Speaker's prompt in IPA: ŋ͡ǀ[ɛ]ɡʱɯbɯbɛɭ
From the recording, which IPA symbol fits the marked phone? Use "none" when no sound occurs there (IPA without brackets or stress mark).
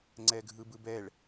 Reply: ɛ